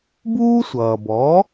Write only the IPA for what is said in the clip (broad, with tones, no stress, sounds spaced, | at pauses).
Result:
b uː˥ sʷ ʌː˩ b ɔ˩˥